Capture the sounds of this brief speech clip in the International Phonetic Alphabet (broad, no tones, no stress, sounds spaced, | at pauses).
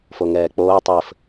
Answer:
f o ŋ ɛː k͡p oː tˤ ɘ f